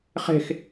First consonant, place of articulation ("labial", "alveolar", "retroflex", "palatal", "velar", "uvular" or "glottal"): uvular